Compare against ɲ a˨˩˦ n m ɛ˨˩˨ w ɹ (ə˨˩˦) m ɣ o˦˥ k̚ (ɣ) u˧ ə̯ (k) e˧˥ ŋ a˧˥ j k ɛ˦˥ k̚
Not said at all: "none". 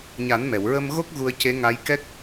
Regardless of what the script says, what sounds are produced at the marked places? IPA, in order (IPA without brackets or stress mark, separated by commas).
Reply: ə˧, ɣ, c